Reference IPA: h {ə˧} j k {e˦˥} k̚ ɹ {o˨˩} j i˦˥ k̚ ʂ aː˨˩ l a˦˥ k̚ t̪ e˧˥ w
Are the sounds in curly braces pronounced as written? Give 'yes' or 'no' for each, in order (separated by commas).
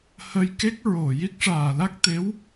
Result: yes, yes, yes